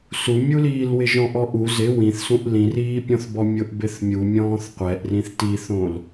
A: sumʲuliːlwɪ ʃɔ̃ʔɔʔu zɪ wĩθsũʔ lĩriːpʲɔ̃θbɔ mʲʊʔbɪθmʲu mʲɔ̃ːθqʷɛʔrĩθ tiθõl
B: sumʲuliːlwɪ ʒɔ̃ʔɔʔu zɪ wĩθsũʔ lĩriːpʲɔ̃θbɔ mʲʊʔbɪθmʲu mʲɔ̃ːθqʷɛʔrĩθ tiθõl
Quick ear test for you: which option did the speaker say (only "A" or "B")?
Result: B